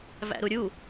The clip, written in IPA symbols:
v æ̰ ɾ u ɾʲ u

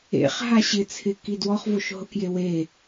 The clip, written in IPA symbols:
ḛ χ ɦ a ɕ ɪ t͡sʰ ɪ k i d w ɔ χ v o ʃ ɦ ʊ k j e w e

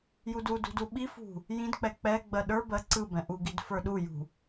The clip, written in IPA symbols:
j u d u d ṳ d u ɓ i f ṳ | j ĩ d k͡p ɛ k͡p ɛ ɡ͡b ɜ ɗ ə˞ b ɜ ǀ ɯ b ɛ̃ ʔ u ɡ i d f ə˞ ɗ u j ṳ

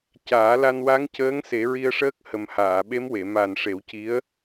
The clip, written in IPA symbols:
c aː˨˩˦ l a˧ n w a˧˥ ŋ c əː˧˥ ŋ s e˨˩˦ ɹ i˧ ə̯ ʂ əː˦˥ k̚ h ə˨˩ m h aː˨˩˨ ɓ e˧˥ m w e˨˩˨ m a˨˩ n ʂ e˨˩˦ w c i˧˥ ə̯

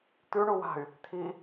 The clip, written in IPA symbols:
t̪ ʉ ɳ u w a̤ y̯ | t̪ʰ i

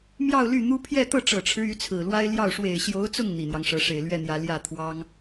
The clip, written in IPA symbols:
m j ɑ˥˧ ʊ̯ l y˥˩ n̪ u˥ pʰ j ɛ˥˧ t̪ ɤ˥˩ ʈ͡ʂ ɤ˨˩ ʈ͡ʂʰ ɻ̩˦ y˧˥ t͡sʰ ɹ̩˨˩ l w a˥ ɪ̯ l j ɑ˥˩ ʊ̯ ʂ w e˨˩ ɪ̯ ɕ j o˧˥ ʊ̯ t͡s ʊ˥˩ ŋ n̪ i˨˩ n̪ j ɑ˦ ŋ ʂ ɤ˧˥ ʂ e˨˩ ɪ̯ l ɥ ɛ˥˩ n̪ j ä˧˥ l j ä˥˩ t̪ʰ w ɑ˥ ŋ

